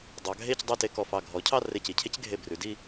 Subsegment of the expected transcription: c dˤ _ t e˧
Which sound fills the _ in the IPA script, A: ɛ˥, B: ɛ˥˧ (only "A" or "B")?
B